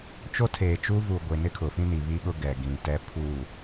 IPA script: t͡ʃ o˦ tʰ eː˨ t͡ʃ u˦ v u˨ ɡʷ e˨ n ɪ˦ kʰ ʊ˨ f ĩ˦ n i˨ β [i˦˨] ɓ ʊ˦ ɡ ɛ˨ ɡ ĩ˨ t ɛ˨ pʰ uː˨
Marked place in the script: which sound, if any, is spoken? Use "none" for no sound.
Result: i˦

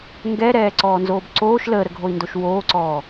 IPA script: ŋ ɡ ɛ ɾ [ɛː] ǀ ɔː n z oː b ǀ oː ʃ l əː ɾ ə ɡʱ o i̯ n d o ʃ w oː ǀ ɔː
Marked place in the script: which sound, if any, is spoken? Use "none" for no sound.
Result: ɛː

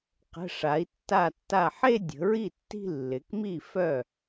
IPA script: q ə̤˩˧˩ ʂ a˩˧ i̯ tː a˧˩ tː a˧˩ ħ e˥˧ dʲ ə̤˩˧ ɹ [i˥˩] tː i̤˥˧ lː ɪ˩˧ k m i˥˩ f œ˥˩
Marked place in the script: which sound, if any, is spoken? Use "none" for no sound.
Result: i˥˩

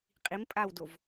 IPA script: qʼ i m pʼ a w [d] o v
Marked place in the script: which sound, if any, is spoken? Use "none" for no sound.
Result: d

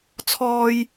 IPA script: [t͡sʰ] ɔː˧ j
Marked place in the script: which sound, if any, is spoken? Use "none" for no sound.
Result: t͡sʰ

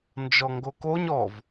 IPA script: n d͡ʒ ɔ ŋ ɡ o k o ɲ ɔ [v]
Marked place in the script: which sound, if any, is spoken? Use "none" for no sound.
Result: v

